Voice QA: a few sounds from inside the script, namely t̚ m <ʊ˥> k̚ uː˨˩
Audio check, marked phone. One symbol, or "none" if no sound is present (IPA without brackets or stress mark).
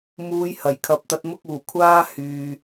ʊ˥